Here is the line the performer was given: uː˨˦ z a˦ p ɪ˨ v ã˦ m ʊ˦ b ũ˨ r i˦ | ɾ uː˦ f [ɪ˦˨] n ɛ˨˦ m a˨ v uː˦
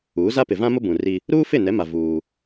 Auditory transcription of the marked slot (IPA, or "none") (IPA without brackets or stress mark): ɪ˦˨